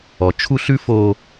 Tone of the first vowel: low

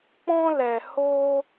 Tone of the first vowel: high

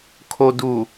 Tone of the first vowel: low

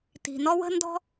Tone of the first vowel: low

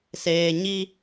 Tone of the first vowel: low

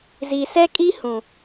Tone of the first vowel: low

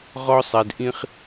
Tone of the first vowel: high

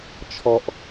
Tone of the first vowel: low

